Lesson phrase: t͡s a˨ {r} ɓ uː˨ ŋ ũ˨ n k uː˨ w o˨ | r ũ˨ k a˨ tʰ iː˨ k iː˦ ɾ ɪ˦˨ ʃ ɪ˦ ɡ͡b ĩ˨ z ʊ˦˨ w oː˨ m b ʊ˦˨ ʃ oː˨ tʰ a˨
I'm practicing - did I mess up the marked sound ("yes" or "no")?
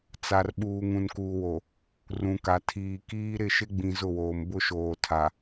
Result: no